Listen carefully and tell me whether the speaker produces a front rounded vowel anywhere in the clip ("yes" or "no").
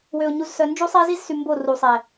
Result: yes